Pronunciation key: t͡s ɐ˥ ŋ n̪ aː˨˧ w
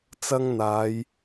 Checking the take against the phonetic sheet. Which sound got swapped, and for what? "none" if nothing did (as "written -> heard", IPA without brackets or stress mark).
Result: w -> j